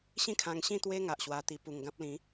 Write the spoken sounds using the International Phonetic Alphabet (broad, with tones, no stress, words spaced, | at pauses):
ɕĩ˥˧kʰã˧ŋɕĩ˥˧ t̪we˧ ŋa˨ʔɕwa˧ t̪i˨˩pu˨˩ŋ ɡã˦p̚lĩ˨˦